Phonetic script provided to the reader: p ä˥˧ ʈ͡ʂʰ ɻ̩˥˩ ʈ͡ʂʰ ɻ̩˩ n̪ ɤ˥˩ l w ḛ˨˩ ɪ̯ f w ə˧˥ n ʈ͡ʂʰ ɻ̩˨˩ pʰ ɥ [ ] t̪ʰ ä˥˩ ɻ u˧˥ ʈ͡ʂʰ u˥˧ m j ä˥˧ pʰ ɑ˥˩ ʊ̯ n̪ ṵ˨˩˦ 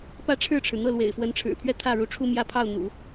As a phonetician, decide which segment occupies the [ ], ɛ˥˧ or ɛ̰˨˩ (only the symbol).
ɛ˥˧